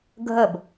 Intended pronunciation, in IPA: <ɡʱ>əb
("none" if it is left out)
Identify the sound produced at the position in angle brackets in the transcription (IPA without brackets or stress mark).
ɡʱ